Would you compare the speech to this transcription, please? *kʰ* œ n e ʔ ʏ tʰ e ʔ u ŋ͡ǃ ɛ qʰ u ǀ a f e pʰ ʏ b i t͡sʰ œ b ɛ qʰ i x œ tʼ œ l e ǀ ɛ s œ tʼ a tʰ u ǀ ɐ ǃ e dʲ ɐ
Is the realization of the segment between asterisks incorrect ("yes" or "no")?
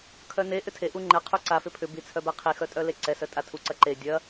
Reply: no